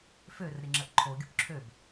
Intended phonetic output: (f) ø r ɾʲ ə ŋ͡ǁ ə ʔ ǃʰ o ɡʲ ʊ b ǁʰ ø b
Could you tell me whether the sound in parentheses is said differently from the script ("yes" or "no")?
no